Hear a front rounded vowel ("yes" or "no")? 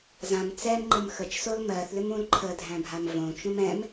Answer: yes